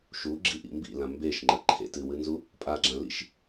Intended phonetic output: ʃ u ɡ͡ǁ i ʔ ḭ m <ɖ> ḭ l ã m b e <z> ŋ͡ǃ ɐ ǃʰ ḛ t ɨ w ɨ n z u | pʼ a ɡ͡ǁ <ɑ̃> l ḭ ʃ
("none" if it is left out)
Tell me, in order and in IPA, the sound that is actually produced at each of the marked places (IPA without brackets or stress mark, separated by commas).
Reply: b, ʃ, ã